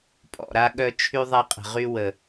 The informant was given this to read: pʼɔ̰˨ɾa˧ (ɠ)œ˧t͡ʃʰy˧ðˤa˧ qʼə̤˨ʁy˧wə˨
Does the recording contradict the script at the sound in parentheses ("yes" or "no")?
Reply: no